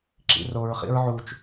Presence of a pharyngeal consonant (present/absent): present